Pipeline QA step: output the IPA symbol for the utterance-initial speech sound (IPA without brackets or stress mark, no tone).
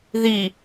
ð